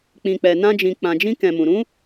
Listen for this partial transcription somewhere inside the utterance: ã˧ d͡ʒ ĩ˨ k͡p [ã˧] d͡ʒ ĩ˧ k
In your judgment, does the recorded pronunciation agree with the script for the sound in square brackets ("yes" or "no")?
no